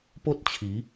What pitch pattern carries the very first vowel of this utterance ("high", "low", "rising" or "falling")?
high